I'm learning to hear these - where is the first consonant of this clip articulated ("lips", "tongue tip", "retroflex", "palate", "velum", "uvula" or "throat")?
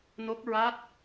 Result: tongue tip